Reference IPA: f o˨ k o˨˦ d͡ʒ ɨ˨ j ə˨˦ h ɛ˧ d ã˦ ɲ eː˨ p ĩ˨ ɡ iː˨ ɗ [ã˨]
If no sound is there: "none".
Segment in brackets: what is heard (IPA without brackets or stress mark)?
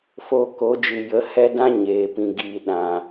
ã˨